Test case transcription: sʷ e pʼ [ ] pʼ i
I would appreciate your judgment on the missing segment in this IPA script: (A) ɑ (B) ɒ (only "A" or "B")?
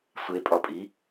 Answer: B